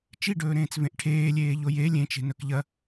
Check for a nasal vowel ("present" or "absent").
present